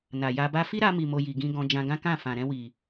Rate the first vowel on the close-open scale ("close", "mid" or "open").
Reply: open